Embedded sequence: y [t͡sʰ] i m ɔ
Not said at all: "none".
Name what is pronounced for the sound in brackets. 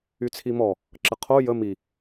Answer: t͡sʰ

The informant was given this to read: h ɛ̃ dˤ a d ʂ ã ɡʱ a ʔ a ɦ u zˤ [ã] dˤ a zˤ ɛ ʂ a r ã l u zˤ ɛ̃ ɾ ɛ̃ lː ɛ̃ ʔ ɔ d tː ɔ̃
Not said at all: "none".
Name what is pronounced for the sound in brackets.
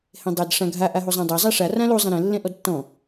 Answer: ã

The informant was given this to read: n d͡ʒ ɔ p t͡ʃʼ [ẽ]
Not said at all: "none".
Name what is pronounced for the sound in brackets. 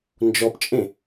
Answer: ẽ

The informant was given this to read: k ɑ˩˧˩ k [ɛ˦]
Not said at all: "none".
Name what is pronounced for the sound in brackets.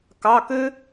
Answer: ø˦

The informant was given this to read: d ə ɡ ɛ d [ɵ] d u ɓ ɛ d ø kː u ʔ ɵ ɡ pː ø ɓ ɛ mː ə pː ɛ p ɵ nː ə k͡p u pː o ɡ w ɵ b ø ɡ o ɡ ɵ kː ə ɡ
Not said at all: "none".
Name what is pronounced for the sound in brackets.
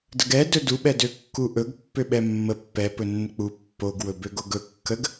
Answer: ɵ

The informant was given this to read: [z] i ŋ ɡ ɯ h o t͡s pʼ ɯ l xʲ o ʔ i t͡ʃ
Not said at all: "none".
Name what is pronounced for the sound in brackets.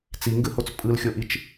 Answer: t͡s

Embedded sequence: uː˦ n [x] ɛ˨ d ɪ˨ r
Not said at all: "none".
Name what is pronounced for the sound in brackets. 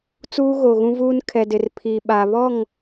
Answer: kʰ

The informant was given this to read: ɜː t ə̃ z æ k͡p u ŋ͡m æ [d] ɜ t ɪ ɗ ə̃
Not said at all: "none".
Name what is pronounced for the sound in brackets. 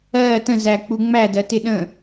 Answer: d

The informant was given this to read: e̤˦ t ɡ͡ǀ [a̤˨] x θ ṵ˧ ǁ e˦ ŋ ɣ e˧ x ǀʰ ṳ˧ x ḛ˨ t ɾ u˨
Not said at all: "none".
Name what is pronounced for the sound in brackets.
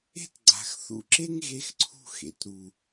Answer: a̤˨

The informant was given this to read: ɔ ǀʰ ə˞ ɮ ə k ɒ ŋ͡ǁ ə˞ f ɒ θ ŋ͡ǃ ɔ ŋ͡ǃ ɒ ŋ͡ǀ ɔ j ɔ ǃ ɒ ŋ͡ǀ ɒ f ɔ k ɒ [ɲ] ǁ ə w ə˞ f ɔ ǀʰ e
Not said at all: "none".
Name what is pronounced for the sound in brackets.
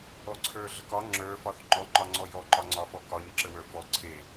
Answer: ɲ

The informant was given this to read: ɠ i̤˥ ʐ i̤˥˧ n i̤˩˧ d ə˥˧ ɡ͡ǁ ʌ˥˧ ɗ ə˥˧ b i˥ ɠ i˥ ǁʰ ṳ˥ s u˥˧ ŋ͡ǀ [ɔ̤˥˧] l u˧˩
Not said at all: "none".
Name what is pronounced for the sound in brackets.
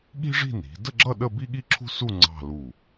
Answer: ɑ̤˥˧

